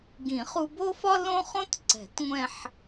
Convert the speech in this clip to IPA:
ɡĩ˨˩˦χu˧ bo˥fɒ˥ lõ˥χõ˥tǀɛ̤˨˩˦t ŋʷɛ̃˥˧ħ

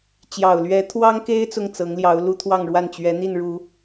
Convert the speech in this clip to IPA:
t͡ɕjɑ˨˩ʊ̯lɥɛ˧˥t̪ʰwɑ˥ŋke˥ɪ̯ t͡sʊ˥˩ŋt͡sɤ˧˥ŋljɑ˧˥ʊ̯lu˥ t̪ʰwɑ˥˧ŋɻwa˥˩nt͡ɕɥɛ˧˥n̪i˥˩n ɻu˨˩˦

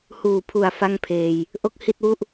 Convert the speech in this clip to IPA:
huː˨˩pʰu˨˩a̯ fa˥˩ŋpʰeː˧j | ʔo˥˩k̚hi˥˩t̚wu˥˩ʔ

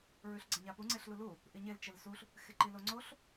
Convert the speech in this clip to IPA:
ɹʉɬɡ͡ǀɐɲapu ŋ͡ǀeɬlulu | ʔiɲel t͡ʃelsuɬ | xeǃiloŋ͡ǀoɬ

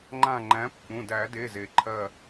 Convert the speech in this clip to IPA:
ŋ͡ǃã˧˩ ŋ͡ǃæ̃˨˥pːũ˩˧˩ dæ˨˩˦de˩˧˩ze˩ ǃʰɜ˧˩

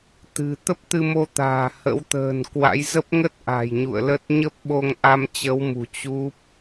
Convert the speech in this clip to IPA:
t̪ɨ̤˨˩ t̪ə˦˥p̚t̪ɨ˧mo˧t̪a̤ː˨˩ hə̰˧˥wt̪ə̤ː˨˩nkwa̰˧˥j zə˦˥p̚ŋə˦˥t̚ ʔa̤˨˩jɲṵ˧˨ə̯lə˦˥t̚ ɲə˦˥p̚ɓo˧ŋʔa˧m t͡ɕə˨˦wmṳ˨˩ t͡ɕu˦˥p̚

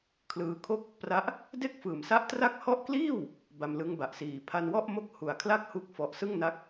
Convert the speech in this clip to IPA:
kʰlɯː˧kʰo˥˩k̚ | pra˦˥ʔ | de˥˩k̚fɯː˨˩msa˦˥ʔ tra˦˥k̚hɔ˦˥ʔkliː˥˩w | ba˧mlɯ˦˥ŋba˨˩ʔsiː˨˩ pʰa˧nwɔ˥˩ʔmo˥˩k̚ hu˨˩a̯kʰla˥˩k̚hu˦˥k̚ fɔ˨˩ʔsɯ˥˩ŋna˦˥k̚

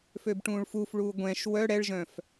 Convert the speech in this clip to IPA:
føbʈũːɭfufɭuː ɡʷɛ̃ʃ wœ ɽɛɭʒœ̃f

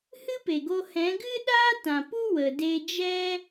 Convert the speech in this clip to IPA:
hɨ˦pe˨ɡo˧ hɛ̃˨˦ ɡɨ˦ɗaː˦ tã˨pu˦ wə˧de˦ d͡ʒɛ˦

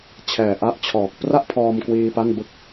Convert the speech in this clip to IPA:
t͡ɕʰɛː˨˩ʔa˦˥ʔt͡ɕʰɔː˨˩k̚ pra˥˩ʔpʰɔː˧mkwiː˧ pa˥˩n bɯ˦˥k̚

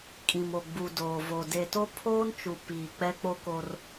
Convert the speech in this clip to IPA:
kʼĩ˨mo˨ ɡ͡bu˨ doː˨vo˨ de˨to˦ pʰoː˦nt͡ʃu˨ piː˨ k͡pɛ˦k͡po˦ko˦r

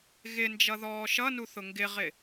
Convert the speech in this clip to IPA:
ɣɪnd͡ʒʌ ðɔːʃʌnu θʊŋɡɪʁɪ

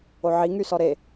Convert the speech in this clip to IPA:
oʕiŋysɔ ɾe

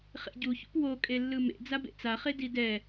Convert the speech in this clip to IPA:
χḛɟuçṵp wo kʼelːɯmḛ d͡zabḛt͡saχe didɛ

